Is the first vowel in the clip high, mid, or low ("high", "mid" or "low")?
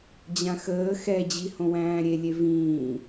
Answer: low